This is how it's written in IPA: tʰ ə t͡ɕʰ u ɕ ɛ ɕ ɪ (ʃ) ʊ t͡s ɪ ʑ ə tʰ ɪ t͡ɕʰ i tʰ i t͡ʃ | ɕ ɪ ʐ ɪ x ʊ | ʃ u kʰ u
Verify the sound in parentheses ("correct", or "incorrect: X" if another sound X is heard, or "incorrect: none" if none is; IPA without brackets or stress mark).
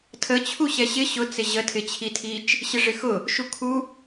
incorrect: ɕ